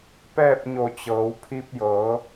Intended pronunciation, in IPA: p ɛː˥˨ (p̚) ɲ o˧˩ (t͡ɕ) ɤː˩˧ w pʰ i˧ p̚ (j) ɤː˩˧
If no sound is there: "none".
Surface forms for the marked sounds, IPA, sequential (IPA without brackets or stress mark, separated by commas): p̚, t͡ɕ, j